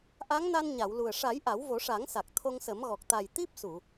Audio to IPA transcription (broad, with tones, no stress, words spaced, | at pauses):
ʔa˧˥ŋna˧nɲa˨˩˨wlu˨˩ə̯ ʂa˨˩˦j ʔa˨˩˦wvo˨˩˦ʂa˨˩˦ŋsa˨˩k̚ t̪ʰo˧ŋsə˨˩˦mɣɔ˨˩k̚ t̪a˨˩j t̪i˦˥p̚su˨˩˨